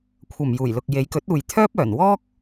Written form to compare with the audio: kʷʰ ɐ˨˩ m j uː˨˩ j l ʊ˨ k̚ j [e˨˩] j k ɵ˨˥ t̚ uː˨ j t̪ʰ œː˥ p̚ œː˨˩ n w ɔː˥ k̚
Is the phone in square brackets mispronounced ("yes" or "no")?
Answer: yes